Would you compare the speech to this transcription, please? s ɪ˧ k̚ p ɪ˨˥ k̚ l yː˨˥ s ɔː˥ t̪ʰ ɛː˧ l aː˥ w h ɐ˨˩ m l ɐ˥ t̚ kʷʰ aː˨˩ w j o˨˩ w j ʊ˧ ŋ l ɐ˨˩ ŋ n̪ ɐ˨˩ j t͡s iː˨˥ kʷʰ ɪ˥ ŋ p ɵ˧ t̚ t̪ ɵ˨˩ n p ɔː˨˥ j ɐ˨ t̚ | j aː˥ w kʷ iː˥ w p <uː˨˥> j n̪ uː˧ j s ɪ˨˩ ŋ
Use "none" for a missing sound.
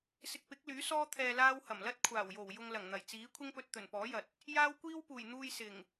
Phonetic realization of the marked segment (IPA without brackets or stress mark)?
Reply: uː˨˩